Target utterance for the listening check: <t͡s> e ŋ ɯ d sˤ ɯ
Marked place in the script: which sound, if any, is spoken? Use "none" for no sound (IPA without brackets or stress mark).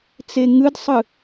t͡s